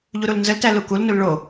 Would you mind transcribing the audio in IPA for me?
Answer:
ʎ u ɾ u l n z ə l t æ l u k u l n u l ɭ o

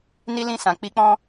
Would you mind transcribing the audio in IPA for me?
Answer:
n i˦ l ĩ˦˨ s ã˨˦ k͡p i˦ k͡p ɔ̃˦

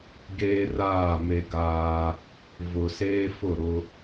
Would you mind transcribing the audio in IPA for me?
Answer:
ɡ eː˦ r aː˦˨ m e˦ ɡ aː˦ | v ʊ˨ s eː˦ f ʊ˦˨ ɾ ʊ˦

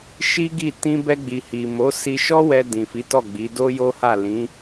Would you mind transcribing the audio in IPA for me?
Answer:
ʃ i˦ ɡ i˦˨ t ĩ˧ b ɛ˧ ɡ͡b i˨ h i˨ m o˨˦ s i˧ ʃ ɔ˦ w ɛ˧ d ĩ˨ f i˨˦ t ɔ˦˨ ɡ͡b i˨˦ d o˦ j o˦ h a˦˨ l ĩ˨˦

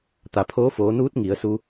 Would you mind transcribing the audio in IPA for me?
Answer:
t̪ a˩ pʰ oː˧˥ f oː˩˧ n uː˧˥ t̚ ŋ i˩˧ ə̯ s u˧

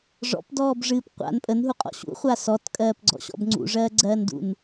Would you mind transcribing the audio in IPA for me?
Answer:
ʐ ɔ̰ p d ɔː b ʐ ɨː p qʷ a̰ n pʼ ə n ɦ u qʼ ɔ̰ ɕ ṵ χʷ a s ɔ t kʼ ɜː p ɡ͡ǀ ɔ̰ ɕ ɔ̰ b ŋ͡ǀ ṵ ʐ ɜː ɡ͡ǀ ɜː n d ṵ n

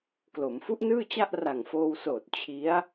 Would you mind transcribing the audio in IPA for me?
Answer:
k l o˩˦ m f u˦˥ ʔ n ɯː˥˩ t͡ɕ a˥˩ ʔ r a˨˩ ŋ f oː˧ w s oː˨˩ t̚ t͡ɕʰ i˦˥ a̯

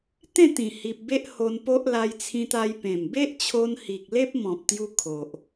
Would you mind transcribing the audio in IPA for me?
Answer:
t̪ ẽ˥˧ t̪ ĩ˨˩ h i˨ p̚ b e˦ ʔ h o˧ n p o˦ ʔ l a˧ j t͡sʰ ĩ˧ t̪ a˧ j p ẽ˨˩ m b e˦ ʔ t͡ɕʰ o˧ n h i˨ k̚ l e˦ p̚ m ɔ̃˨ p̚ t̪ j u˧ kʰ o˨ ʔ

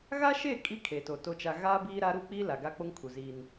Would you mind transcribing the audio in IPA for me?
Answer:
ɣ a˦ ʃ e˦˨ kʼ i˦ kʰ eː˨ t o˨ t o˦ t͡ʃ a˦ ɣ aː˦ b iː˦ ɾ a˦ ɾ u˦ k͡p iː˦ l a˨ ɡ a˦ k͡p o˦ ŋ kʰ u˨ z iː˦ n

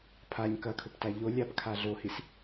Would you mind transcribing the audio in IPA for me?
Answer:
pʰ a ɲ k ɐ kʰ ɵ p t a ʎ o lʲ a p kʰ a ɮ o h i s

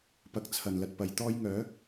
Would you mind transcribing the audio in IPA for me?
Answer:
p ɐ˧ k̚ t͡sʰ ɐ˨ n l ɐ˧ t̚ p ɐ˨˧ j t̪ ɔː˥ j ŋ œː˨˥

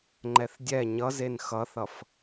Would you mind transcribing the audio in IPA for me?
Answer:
ŋ͡ǃ ɛ θ dʲ ɛ ɲ ʌ z e n x ʌ θ ʌ f

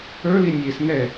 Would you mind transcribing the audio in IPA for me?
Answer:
ə˞ l i nʲ e s n ɛ

